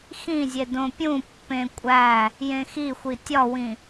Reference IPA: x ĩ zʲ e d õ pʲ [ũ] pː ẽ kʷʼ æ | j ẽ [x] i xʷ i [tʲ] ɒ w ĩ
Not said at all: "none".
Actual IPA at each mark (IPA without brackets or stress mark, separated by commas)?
ũ, x, tʲ